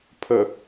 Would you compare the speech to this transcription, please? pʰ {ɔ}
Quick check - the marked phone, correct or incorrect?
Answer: incorrect